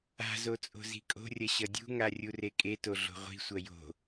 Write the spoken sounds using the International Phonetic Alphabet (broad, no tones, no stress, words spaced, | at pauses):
a̤zo t͡sʼo̤zi̤kʼo̤rʲɐ ɕʌdʲṳŋa rʲurekʼeto ɮo̤ʁʷi̤sʷɐ jo̤